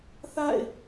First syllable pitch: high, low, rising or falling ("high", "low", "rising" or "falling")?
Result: falling